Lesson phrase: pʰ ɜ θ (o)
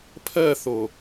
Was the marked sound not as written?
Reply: no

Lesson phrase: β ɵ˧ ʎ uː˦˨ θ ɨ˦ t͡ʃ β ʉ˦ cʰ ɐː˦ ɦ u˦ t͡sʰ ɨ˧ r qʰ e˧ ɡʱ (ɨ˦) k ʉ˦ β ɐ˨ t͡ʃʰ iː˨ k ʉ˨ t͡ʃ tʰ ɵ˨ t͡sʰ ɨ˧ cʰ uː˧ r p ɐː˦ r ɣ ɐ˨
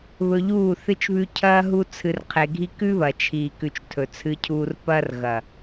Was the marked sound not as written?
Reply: yes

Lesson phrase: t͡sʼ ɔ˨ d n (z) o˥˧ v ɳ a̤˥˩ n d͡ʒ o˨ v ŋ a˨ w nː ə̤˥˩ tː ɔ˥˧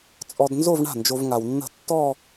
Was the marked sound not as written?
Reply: no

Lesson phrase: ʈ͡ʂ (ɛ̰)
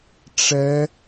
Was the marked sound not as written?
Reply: yes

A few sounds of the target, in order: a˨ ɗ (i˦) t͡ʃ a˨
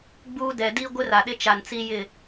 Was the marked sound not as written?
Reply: yes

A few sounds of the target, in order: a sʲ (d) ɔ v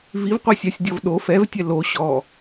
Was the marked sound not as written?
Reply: yes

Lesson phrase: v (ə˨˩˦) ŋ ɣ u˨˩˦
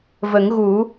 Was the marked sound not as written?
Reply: no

